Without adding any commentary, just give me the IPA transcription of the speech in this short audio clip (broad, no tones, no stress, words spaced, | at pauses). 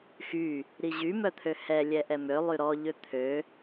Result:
xy | ɾiʑy mœt̪ʰøhɛ lʲɛʔɛmø lˠyɾɔ ʎøt̪ʰø